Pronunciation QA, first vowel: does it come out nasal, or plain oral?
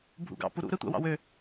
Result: oral